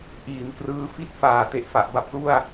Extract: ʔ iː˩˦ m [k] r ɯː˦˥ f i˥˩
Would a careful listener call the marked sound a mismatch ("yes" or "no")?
no